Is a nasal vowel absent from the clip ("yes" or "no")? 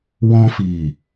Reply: no